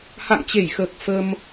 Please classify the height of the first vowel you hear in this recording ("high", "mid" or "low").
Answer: low